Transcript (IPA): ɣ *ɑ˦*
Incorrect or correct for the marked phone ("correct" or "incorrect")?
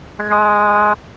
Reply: incorrect